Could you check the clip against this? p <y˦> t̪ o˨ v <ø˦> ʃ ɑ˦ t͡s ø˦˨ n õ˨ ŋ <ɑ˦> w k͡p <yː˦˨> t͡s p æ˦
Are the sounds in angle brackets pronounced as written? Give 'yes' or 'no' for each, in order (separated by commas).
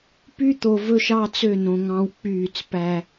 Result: yes, no, no, yes